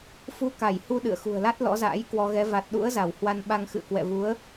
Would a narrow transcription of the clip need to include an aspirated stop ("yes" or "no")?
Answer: no